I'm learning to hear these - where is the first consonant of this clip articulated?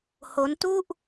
throat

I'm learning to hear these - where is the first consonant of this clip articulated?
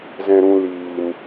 tongue tip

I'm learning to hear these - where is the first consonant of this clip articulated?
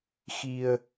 velum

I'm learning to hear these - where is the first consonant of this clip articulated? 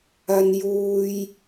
tongue tip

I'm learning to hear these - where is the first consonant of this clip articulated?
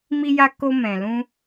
lips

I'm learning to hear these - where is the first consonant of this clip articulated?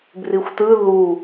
lips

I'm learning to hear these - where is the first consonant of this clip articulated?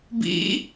lips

